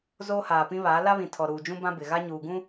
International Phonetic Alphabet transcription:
z oː˦ h aː˨ p ĩ˦ β aː˨˦ l a˦ β ĩ˨ tʰ ɔ˨ ɾ uː˨ d͡ʒ ũ˦ b ã˦ b ɪ˨ ɣ a˦ ɲ uː˨ ɡ ũ˦

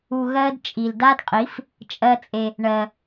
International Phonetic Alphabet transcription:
u˧ ɣ ɜ˦ d t͡ʃʼ i˨ l d a˦ d qʼ i˨˦ f | t͡ʃʼ ɜ˦ t͡sʼ e˧ | ɳ ɜ˧

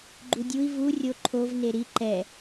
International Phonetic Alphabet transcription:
ɡ͡ǃ u dʲ u i̯ v u rʲ o ǃʰ o v n e ɾ i ǃ ɛ

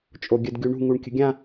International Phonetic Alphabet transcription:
t͡ʃʼ o ɡʲ ə d ɡʲ u ɳ ṳ ŋ u ɳ kʲ ə̤ ɡʲ ã

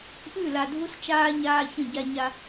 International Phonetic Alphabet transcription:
ʔ ʉ˦˨ l a˨ dʱ u˦ s t͡ʃ aː˦ ɲ aː˦ ç ə̃˦˨ ɟ a˦ ɲ a˦

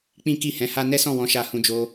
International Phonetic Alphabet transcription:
k͡p ĩ˦ k i˦˨ h ɛ̃˧ h a˦ n ɛ˦ s ɔ̃˦˨ w ɔ̃˧ ʃ a˧ h ũ˧ d͡ʒ o˧

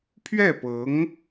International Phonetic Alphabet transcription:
pʰ ɥ ɛ˥˩ p ɤ˧˥ ŋ

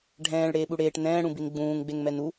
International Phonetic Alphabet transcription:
ɖʱ ɛ̃ː ɭ ɽ eː ɓ u ɽ eː ʈ n ɛ̃ː ɽ ũ b i n ɡ͡b ũː ŋ ɡ͡b e ŋ m ɛ n u

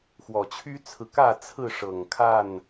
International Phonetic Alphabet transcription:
x w ɔ˨˩ t͡ɕʰ y˦ t͡sʰ ɹ̩˨ k ä˥˨ t͡sʰ ɹ̩˥˨ ʂ ɤ˨˩ ŋ kʰ a˥˨ n

